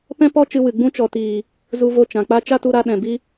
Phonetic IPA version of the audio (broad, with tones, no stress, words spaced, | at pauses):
pɛ̃˦pɔ˦ t͡ʃɨ˧wɨ˨ ɡ͡bũ˧t͡ʃɔ˨tiː˨ | zu˧vo˧t͡ʃã˨k͡pa˦ t͡ʃa˦tu˧ɾa˧ ɗɛ̃˨ bi˦